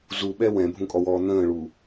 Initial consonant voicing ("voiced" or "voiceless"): voiced